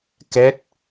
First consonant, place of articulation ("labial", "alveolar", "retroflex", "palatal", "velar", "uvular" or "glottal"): velar